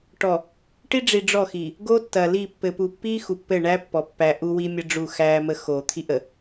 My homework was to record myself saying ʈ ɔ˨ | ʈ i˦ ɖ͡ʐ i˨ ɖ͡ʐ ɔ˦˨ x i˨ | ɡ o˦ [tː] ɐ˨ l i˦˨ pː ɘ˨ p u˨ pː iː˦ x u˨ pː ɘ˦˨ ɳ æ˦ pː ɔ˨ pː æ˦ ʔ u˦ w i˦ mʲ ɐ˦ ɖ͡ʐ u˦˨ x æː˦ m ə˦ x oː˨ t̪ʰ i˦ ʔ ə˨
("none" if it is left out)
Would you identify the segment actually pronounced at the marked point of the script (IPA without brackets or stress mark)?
tː